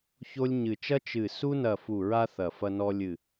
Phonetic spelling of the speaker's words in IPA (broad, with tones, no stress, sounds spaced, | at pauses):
ç o˦ lʲ ɲ ɨ˧˩ t͡ʃ ɐ˦ t͡ʃ ɨ˧˩ s u˦ n ɐ˧˩ f u˧˩ ɹ a˦ θ ɐ˧˩ f ɐ˦ n ɔ˦ lʲ ɨ˧˩